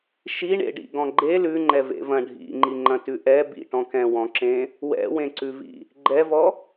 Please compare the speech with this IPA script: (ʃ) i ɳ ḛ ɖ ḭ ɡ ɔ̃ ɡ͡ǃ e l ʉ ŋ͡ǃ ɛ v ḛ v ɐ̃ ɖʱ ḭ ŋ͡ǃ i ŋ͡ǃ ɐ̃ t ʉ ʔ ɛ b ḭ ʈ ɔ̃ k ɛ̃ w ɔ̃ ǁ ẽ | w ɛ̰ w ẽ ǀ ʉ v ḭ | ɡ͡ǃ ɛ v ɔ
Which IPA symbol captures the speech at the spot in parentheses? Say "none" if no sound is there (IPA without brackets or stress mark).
ʃ